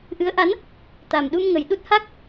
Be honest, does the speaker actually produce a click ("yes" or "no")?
no